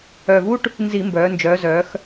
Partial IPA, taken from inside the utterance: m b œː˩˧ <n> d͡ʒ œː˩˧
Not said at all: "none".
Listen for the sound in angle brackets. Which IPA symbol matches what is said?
n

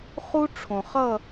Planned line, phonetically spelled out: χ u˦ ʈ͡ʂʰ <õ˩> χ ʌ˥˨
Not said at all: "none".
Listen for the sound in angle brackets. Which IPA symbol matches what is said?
õ˩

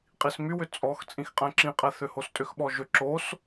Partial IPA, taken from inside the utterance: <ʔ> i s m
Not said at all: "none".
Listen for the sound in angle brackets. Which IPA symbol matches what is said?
qʼ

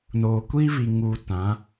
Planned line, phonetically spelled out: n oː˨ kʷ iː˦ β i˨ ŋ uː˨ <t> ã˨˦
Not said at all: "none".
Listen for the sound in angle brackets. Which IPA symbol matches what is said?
t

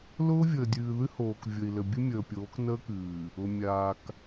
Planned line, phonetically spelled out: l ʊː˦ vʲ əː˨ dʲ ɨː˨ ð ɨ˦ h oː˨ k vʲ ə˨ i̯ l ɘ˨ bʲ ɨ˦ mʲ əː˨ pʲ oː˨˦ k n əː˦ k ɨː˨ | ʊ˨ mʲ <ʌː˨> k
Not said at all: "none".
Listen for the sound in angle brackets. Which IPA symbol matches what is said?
aː˨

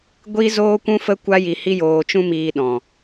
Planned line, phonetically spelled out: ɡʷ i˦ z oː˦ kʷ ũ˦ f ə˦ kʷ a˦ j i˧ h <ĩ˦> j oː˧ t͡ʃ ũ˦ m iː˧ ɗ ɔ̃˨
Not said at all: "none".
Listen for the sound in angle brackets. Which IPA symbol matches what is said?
i˦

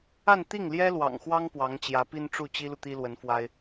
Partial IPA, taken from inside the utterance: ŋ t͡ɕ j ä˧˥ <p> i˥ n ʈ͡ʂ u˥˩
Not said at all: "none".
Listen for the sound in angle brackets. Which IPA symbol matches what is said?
p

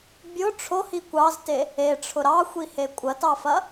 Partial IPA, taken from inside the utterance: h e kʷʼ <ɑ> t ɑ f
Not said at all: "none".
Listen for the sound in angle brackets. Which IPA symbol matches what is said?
ɐ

